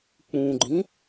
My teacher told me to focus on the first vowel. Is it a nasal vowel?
yes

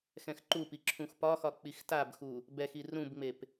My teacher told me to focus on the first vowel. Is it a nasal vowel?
yes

